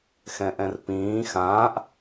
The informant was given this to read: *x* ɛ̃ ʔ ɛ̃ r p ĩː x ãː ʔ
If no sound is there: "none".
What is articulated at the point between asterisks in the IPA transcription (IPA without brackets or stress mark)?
x